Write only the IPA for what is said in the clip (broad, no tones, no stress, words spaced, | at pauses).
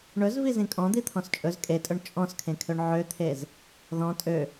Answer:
ɳɵzvizĩ kʼɔ̃d̪it̪ʰɔ̃s t͡ʃʼɵz kʼetʼɵɳ t͡ʃʼɔ̃skʰẽkʰøɳ ʕøt̪ʰez | ðɔ̃ tʼø